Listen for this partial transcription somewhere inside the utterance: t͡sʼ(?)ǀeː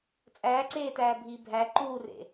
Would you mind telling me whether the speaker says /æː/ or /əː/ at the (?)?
æː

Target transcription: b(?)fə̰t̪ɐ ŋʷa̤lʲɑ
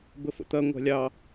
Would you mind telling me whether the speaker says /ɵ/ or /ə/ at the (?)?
ə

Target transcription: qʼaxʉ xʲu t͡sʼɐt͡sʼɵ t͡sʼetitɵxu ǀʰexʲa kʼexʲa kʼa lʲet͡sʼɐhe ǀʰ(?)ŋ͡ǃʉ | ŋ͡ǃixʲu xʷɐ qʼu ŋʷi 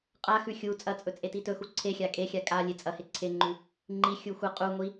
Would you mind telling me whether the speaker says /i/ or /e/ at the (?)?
e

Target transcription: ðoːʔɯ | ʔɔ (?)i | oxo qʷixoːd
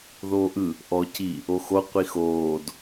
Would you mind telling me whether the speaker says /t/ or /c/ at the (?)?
c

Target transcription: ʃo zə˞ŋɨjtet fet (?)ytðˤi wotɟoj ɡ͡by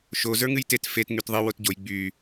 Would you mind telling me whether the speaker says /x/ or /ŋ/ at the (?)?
ŋ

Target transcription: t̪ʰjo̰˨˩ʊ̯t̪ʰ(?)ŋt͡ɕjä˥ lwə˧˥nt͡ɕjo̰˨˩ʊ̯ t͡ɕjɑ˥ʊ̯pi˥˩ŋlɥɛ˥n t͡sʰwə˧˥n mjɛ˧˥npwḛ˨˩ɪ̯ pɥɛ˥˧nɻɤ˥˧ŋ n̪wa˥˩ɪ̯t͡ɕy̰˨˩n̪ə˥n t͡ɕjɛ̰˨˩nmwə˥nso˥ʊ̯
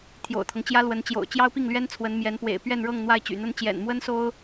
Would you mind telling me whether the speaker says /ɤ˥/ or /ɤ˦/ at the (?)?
ɤ˦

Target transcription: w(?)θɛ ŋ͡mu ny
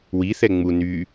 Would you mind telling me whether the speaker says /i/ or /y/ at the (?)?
i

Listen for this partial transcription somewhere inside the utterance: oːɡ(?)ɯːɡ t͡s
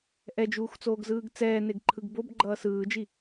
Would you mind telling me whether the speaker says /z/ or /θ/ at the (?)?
z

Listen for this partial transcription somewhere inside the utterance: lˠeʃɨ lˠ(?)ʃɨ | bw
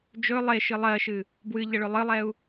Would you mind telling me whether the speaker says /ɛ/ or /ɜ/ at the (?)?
ɜ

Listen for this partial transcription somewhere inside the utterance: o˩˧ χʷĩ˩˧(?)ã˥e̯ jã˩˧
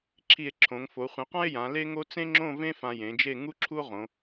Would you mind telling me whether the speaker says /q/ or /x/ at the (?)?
q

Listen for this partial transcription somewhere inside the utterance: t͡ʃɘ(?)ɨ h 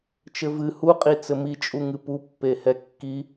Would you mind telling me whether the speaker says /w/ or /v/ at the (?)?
v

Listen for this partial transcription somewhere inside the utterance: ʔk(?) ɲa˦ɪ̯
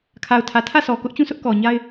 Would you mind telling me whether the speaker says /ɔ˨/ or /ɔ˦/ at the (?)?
ɔ˨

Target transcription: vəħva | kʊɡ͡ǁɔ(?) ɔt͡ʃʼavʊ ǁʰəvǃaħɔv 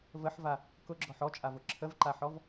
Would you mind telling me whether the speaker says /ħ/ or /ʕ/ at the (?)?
ħ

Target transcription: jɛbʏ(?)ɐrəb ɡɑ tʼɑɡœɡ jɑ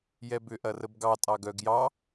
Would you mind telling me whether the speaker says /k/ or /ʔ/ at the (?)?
ʔ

